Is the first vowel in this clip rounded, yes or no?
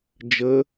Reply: no